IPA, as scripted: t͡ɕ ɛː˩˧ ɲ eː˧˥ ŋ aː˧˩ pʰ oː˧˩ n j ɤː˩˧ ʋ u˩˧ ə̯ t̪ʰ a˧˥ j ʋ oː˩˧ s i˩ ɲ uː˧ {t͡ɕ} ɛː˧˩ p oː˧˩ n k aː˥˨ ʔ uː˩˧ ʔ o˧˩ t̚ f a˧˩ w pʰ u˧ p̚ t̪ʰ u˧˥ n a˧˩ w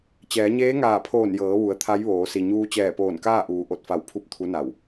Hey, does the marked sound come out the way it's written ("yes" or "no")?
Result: yes